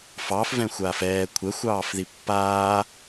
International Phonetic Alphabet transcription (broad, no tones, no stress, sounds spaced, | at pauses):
f ɑ f v ɛ̃ xʷ aː f ɛː kʷʰ ɛ xʷ ɑː f ð i pː aː